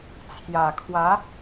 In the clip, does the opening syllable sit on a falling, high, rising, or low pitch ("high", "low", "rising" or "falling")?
low